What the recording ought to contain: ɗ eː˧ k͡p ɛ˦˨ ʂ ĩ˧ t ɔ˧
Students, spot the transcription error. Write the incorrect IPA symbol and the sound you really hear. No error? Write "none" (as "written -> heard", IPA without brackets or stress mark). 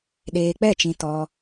ʂ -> t͡ʃ